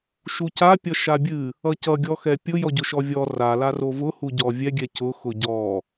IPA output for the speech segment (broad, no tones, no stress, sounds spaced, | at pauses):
ʃ u c a pʲ ʌ ʃ a bʲ ɨ | ʌ c ʌ ɡʲ ɔ x ɛ pʲ ʊ j ɔ ɟ ʊ ʃ ɔ vʲ ɔ r a l a r o v ʊ h u ɟ ɔ vʲ ɛ ɡʲ ɛ c ʊ x ʊ ɟ ɔ